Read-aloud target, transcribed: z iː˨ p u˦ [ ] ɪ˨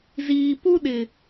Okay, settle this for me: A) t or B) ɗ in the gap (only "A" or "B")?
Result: B